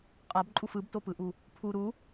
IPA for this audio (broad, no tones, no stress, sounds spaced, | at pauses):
qʼ a b ǃʼ u f ɯ b t o p ɯ ʔ u | pʰ u ɾ u